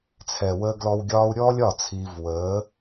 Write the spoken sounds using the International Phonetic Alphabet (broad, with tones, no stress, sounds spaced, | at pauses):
t͡sʰ ɛ˨ w əː˧ ɡ l ɔ˧ w ɡʲ ɒː˦ u̯ ɾʲ ɔː˦ lʲ ɒ˦˨ t͡sʰ iː˧ v w əː˨˦